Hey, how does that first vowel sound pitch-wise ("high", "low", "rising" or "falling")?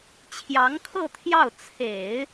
rising